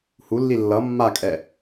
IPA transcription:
h u lː i lː ʌ mː a kʼ ɛ

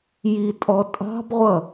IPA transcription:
j i tʼ ɔ tʼ ɑ̤ b ʁʷ ʌ

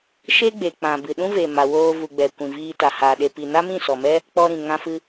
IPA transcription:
ʃ e˦ ɡ͡b e˨ k͡p ã˨ b ɨ˨ ɗ ũ˦ v e˨ m a˨ w oː˧ v u˨ ɡ͡b ɛ˨ kʷ ĩ˨ v iː˧ t a˨ h a˨ ɗ e˨ p i˨ n a˦ m ĩ˦˨ s ɔ˨ m ɛ˦ | k͡p ɔ˧ ɾ ĩ˨ ŋ ã˧ f ɨ˦

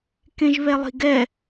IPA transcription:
k ẽ ʒ β ɛ lˠ i̤ ɡ ɛ

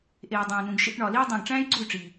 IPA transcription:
ʔ eː˨ dˤ æ̃˨ n ũ˨ ɡ ʃ ḭ˧ ʈ ɳ ɒ˨ l iː˦ dˤ ũ˨ ɡ ʈ͡ʂ æ̃ː˦ j ɡ͡ǀ u˦˨ y̯ ʈ͡ʂ iː˨

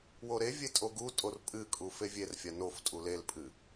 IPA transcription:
w o ɾ e vʲ e tʼ o ɡ u tʼ o r pʼ ɨ kʼ u f e vʲ e r fʲ a n o f tʼ u l e l pʼ ɨ

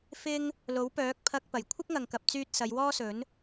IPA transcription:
f ɪ˥ ŋ | l o˨˥ w p œː˨˥ k̚ pʰ ɐ˧ k̚ p ɐ˨˩ j kʷʰ ɪ˥ k̚ ŋ ɐ˨ ŋ k ɐ˨ p̚ t͡s yː˧ t̚ s ɐ˨˧ j w ɔː˥ s ɵ˨˥ n

